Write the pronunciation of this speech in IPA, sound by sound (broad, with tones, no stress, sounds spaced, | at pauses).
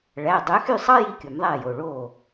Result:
ɭ æ˩˧˩ dˤ ø˨˥ x y˥˨ sˤ ɑ˥ j i˥˨ kʲ u˨˩˦ m ðˤ æ˥˨ j o˩˧˩ ɭ o˧˩